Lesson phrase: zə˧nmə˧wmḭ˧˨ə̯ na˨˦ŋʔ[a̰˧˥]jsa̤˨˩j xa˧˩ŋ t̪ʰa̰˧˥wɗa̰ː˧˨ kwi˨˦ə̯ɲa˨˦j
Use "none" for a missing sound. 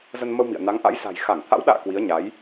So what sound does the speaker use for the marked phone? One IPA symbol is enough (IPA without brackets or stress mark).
a̰˧˥